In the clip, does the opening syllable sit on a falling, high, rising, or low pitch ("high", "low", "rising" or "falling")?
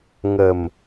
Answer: low